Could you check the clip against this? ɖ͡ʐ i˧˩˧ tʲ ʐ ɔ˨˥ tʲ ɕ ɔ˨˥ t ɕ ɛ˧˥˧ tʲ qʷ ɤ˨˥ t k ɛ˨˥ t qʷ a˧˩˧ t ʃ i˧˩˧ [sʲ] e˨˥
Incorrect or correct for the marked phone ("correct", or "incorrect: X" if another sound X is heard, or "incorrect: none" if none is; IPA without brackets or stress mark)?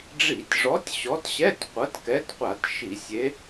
correct